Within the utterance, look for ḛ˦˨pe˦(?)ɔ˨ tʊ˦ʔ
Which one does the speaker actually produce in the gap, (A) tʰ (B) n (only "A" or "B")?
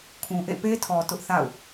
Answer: A